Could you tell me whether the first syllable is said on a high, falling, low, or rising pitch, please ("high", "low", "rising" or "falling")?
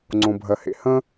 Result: low